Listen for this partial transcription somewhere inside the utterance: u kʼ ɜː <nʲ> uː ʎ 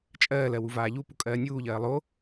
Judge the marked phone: correct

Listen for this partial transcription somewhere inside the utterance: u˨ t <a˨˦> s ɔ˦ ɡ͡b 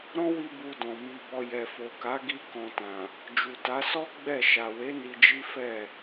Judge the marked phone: correct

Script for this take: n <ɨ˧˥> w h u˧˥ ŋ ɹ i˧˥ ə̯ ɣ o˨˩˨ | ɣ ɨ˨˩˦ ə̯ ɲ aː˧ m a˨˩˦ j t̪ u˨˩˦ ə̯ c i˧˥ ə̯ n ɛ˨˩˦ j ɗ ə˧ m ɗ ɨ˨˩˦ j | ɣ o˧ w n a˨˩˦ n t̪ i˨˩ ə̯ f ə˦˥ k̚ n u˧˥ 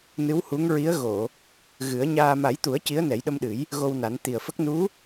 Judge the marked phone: correct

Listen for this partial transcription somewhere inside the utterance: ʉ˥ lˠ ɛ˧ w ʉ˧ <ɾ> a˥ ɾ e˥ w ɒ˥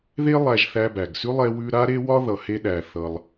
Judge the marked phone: correct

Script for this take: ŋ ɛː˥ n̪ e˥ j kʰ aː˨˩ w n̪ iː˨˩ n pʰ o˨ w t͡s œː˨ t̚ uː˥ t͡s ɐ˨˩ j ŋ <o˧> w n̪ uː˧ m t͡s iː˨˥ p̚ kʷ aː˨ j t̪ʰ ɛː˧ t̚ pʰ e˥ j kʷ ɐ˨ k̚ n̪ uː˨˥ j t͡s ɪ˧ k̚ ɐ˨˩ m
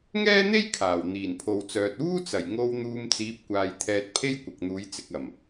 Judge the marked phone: correct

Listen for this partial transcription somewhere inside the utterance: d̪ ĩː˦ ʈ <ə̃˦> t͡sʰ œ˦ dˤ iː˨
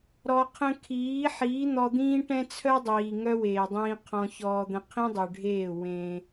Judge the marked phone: incorrect: ɛ̃˦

